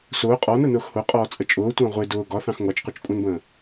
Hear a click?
no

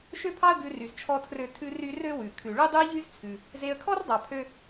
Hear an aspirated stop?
yes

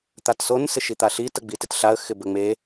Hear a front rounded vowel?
no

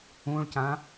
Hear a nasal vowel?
yes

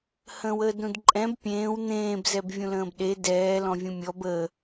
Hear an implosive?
yes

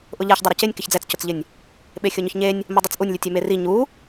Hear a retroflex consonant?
no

